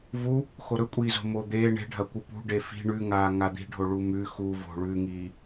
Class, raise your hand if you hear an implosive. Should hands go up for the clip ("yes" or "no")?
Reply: no